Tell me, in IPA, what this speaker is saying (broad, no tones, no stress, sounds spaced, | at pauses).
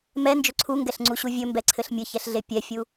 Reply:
m ɛ n d͡ʒ ɵ ǀʰ u ŋ ɡ ɛ ɬ ŋ͡ǀ u ɕ u vʲ ɵ m b ɛ ǀʰ ɘ ɬ mʲ ɘ ç ɛ ɬ ɮ e pʲ ɛ fʲ u